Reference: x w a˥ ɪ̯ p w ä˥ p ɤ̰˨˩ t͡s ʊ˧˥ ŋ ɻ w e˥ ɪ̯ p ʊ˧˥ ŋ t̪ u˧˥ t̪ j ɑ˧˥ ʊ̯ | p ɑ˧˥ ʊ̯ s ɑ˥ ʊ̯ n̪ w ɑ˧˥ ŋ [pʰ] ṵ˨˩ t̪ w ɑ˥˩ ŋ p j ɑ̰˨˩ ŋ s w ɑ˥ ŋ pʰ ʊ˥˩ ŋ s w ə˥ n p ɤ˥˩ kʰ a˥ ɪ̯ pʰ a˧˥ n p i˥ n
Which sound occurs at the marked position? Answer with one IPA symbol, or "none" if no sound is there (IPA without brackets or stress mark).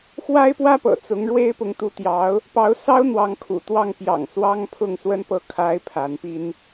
kʰ